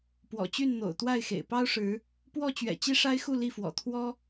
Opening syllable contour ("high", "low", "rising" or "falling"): low